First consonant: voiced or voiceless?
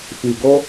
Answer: voiceless